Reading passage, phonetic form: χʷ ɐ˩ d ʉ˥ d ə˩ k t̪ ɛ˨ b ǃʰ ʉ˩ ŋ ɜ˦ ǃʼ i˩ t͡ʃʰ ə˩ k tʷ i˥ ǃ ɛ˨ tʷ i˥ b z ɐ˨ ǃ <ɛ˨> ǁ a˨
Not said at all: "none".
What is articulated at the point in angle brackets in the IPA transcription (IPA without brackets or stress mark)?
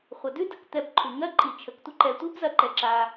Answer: ɛ˨